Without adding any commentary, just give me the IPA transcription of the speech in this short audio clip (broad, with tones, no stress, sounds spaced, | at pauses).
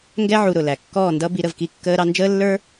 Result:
ŋ ɡ ɛ˦ ʕ u˧ ɾ ʊ˨ l æ˨ kː ɔː˦˨ n d ʌ˦ b i˧ ɾ ə˨ v k i˧ kː əː˧ ɾ ɑ˧ n d͡ʒ əː˦ lː ə˞˦